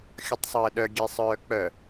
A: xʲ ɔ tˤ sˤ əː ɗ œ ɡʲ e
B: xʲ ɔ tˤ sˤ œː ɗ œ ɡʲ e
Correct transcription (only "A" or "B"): A